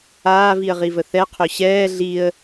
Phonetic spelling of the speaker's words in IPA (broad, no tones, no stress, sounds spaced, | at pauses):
aː v i ə̯ ʁ i v ə θ ɛ qʰ ø ɕ ɛː ɮ i ə̯